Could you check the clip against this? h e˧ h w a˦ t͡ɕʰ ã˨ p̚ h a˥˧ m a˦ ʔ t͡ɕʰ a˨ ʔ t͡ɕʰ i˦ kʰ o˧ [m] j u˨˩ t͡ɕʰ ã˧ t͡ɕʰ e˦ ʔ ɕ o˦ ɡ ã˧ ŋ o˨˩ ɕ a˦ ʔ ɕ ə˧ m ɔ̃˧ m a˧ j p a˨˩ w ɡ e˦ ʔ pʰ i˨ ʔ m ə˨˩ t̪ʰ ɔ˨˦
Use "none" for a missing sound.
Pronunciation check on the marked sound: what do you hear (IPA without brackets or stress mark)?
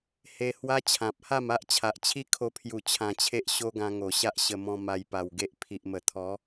pʰ